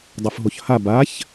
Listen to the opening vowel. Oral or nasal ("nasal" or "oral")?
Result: oral